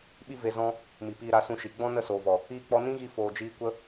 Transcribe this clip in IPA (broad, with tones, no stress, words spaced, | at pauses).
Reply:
ɓi˦ve˧ zɔ̃˦ | mi˨piː˧ɾa˧ sũ˧ʃi˨ ɡ͡bɔ̃˦ nə˦˨soː˨vɔ˨ | iː˧k͡pɔ˧ nĩ˦ɣi˧ foː˨d͡ʒiː˧ kʷə˦